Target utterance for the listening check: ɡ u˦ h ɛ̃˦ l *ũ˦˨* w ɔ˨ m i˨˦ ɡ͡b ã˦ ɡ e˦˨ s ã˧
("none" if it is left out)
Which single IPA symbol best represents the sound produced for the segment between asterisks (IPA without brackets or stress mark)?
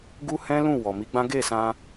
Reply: ũ˦˨